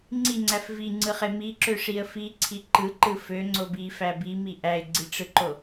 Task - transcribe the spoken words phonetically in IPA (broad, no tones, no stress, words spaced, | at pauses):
ŋ͡ǀiŋ͡ǀæf viŋ͡ǀɯχe miǁøʂiə̯ fiǀʰi ǃɯǃɯ føŋ͡ǀo bifæ bimi ʔæɪ̯ɡ͡ǀiʈ͡ʂɯǃo